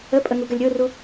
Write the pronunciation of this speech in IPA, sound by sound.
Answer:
əpʼə ŋuɡəlʲɾʲoru

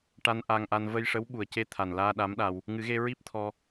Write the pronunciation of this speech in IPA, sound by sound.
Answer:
ʈa˧n ʔa˧ŋʔa˧n və˧jʂə˧˥w ɓu˨˩ə̯ce˧ t̪ʰa˨˩n laː˧ ɗa˧˥mɗa˧w | ŋɨ˨˩˦ɣe˧ ɹi˦˥p̚t̪ʰɔ˧

